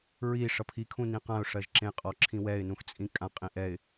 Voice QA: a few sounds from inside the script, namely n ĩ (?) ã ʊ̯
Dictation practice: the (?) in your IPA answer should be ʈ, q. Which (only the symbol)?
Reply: q